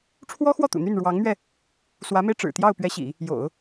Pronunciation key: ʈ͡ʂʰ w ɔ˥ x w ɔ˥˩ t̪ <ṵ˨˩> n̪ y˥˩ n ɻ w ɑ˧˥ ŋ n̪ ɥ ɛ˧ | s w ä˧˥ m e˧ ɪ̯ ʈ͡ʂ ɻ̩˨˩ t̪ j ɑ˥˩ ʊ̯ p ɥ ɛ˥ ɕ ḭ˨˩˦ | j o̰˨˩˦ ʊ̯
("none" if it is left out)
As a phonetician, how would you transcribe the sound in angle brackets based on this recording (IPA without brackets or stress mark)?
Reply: ṵ˨˩